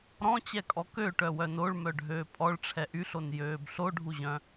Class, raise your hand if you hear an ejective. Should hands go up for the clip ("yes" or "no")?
yes